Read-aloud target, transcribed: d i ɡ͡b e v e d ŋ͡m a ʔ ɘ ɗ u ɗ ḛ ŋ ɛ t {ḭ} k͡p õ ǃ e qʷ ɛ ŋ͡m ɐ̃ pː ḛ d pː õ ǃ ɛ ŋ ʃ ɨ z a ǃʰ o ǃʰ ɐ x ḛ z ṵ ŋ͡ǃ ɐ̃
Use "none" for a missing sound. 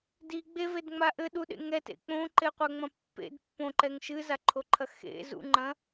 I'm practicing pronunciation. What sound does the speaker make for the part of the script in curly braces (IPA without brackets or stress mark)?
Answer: ḛ